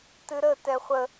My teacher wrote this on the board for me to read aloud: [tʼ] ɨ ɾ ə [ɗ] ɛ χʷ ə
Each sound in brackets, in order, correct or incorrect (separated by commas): incorrect, incorrect